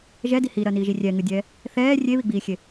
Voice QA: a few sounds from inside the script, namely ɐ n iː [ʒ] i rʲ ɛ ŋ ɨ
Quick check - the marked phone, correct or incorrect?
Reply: correct